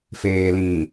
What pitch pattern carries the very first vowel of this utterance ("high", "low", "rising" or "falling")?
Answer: low